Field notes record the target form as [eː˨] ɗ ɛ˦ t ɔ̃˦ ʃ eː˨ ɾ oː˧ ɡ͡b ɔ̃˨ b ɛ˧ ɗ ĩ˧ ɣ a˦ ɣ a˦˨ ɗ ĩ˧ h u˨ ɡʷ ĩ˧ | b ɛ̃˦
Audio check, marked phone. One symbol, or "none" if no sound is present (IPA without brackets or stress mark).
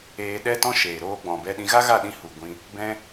eː˧